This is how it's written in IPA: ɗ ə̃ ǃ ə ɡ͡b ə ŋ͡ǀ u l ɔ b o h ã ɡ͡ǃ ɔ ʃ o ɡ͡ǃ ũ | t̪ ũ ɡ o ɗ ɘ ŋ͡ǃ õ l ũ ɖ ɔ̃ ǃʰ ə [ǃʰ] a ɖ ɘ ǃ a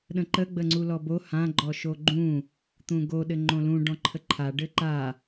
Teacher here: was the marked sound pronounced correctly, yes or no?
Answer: yes